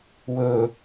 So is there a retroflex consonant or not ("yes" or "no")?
no